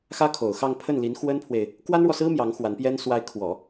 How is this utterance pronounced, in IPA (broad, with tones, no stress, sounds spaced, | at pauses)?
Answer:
x ä˥ kʰ o˨˩ ʊ̯ x ɑ˥˧ ŋ pʰ ə˥˩ n l i˧˥ n x w ə˥ n pʰ w e˨ ɪ̯ | k w a˥ n ɻ w ɔ˨ s ɹ̩˥ m j ɑ˧˥ ŋ x w a˧˥ n p j ɛ˥ n s w a˧˥ ɪ̯ kʰ w ɔ˨˩˦